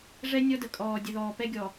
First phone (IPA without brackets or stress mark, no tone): ʐ